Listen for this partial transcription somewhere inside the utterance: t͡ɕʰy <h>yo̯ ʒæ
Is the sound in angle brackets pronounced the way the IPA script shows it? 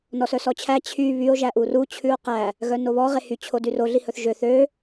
no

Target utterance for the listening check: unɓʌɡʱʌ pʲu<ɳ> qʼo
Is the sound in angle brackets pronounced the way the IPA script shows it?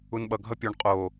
yes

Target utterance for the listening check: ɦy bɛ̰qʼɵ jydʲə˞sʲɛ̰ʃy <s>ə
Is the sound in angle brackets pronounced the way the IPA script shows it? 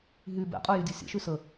yes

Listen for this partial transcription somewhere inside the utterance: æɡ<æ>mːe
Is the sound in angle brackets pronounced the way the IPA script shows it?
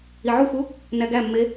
yes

